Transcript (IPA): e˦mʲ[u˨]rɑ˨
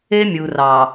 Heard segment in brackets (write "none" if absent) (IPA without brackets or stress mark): u˨